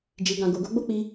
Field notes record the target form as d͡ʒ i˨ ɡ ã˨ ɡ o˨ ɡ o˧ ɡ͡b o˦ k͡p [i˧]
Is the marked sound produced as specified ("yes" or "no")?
yes